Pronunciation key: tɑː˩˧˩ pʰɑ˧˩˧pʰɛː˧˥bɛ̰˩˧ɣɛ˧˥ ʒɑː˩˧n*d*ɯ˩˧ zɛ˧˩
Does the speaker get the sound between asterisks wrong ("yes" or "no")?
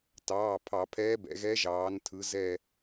yes